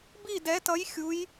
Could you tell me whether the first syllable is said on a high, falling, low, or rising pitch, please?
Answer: falling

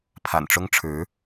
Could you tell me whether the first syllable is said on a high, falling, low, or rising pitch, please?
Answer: low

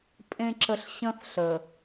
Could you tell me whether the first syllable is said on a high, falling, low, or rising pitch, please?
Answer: low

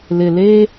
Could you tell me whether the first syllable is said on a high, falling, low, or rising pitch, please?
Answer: low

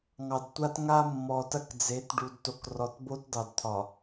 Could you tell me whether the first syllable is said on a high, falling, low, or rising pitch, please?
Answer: low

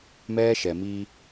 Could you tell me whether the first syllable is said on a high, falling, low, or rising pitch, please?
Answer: high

